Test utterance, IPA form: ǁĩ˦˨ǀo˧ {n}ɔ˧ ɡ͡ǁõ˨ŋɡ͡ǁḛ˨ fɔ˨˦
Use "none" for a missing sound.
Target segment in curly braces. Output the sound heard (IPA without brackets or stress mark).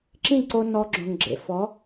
n